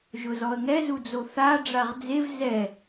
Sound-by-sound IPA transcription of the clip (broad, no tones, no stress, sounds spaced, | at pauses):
ʒ ʊ z ɔ ə̯ ŋ ɛ z u d͡z o θ a ɖ͡ʐ a ʁ d͡z e v z ɛ